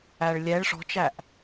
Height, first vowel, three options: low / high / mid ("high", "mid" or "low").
low